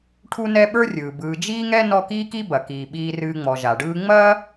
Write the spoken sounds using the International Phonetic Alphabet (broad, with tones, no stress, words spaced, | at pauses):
ʈʰu˦nɛ˦ɓə˞˥rʲɯː˩ bɯː˨d͡ʒiː˥ŋɛ˥ nɔ˦kiː˥ki˥bɐ˩ kiː˩ɓiː˨rɨː˨ŋ͡mɔ˩ ʒa˩ɖɯː˦ ŋ͡mɐː˥